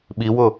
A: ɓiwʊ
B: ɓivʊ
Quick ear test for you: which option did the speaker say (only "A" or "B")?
A